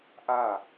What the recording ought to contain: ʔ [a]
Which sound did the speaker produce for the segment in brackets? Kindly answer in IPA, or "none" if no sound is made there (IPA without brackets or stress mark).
a